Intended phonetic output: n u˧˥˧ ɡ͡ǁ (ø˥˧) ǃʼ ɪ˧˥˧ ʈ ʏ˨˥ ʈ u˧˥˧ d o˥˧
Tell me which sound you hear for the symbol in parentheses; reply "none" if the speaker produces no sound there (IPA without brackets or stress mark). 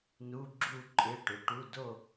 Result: u˥˧